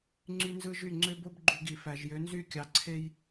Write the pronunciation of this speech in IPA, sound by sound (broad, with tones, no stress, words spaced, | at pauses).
ŋ͡ǀy˦nzɯ˦ʒy˦˨ ŋ͡ǀø˦bo˦b ɡ͡ǃu˨ ɡi˨fæ˨ʒjø˨˦nzy˦˨ kʲɑ˨ǀʰe˦j